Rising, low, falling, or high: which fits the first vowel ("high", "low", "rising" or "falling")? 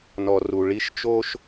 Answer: low